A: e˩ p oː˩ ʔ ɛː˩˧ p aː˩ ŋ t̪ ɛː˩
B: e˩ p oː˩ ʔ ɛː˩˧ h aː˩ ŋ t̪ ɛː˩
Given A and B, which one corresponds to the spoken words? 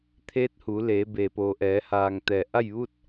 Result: B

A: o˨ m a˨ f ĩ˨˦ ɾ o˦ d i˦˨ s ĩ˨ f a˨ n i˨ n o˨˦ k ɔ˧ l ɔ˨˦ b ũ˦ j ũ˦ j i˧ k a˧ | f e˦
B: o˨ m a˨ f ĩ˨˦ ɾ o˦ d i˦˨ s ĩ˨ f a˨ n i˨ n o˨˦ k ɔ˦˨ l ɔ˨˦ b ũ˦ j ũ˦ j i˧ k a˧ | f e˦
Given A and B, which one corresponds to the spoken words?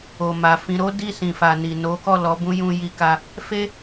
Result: B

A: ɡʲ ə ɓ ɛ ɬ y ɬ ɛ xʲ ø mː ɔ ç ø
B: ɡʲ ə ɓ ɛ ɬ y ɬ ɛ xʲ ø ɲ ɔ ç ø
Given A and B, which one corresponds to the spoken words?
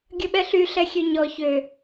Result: B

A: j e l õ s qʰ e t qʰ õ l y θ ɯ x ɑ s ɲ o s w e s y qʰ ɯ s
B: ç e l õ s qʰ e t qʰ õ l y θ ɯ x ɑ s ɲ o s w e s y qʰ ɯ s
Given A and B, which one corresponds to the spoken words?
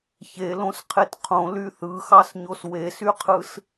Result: B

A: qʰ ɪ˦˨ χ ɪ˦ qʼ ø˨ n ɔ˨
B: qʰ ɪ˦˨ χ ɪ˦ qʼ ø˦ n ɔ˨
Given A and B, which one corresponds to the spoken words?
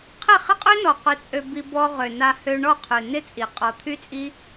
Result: B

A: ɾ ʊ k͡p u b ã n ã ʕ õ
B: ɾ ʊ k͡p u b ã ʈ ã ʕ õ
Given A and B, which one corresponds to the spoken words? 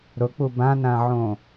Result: A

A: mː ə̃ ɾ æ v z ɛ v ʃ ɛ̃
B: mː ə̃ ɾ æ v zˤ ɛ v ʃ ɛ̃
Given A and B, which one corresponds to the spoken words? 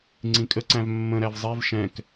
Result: B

